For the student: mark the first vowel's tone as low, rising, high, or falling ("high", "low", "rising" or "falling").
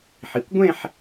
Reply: low